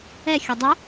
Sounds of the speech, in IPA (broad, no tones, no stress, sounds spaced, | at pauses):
ɛ xʲ ɵ dˤ ʊ